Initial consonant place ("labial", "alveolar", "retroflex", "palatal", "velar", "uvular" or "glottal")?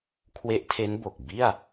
velar